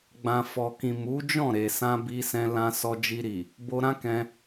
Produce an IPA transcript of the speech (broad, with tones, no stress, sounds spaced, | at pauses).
ɡ͡b ã˨ f ɔ˨ k ĩ˨ m u˨˦ d͡ʒ ɔ̃˦˨ ɾ e˨ s ã˧ b i˧ s ɛ̃˧ l ã˧ s ɔ˧ d͡ʒ i˧ ɾ i˨ | b o˧ ɾ ã˦ k ɛ̃˧